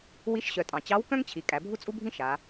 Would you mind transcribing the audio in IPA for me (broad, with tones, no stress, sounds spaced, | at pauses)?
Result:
w i˧˥ ʃ ɕ œ˩˧ tʼ ɑ̃˩ t͡ɕ ɑ˧˥ w k œ̃˥ ŋ t͡ɕʰ i˩˧ kʼ æ˩˧ bʱ u˥ t͡sʼ u˥ bʱ ĩ˥ ʃ a˩˧